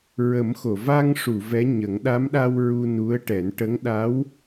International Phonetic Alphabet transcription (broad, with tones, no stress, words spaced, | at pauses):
ɹə˨˩˦mxo˨˩˨ va˧ŋʂu˨˩˨ vɛ˧˥ɲə˨˩˦ŋ ɗa˧˥mɗa˧w ɹu˧nu˧˥ə̯ʈɛ˨˩˦n ʈə˧˥ŋɗa˧˥w